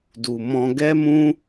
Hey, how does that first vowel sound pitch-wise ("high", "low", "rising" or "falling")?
low